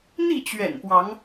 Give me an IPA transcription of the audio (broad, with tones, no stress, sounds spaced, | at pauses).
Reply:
n̪ i˥˨ t͡ɕ ɥ ɛ̰˨˩ n p w ɑ˨˦ ŋ